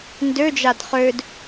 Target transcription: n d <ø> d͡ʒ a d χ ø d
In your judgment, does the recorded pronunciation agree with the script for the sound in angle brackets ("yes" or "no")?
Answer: yes